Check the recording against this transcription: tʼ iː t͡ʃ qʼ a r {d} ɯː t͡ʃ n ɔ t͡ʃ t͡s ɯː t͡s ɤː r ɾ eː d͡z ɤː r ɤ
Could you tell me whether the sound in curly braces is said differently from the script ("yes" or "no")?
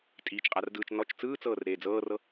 no